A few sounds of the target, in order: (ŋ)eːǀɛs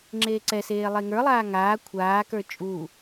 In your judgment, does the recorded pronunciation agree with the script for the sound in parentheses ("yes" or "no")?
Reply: no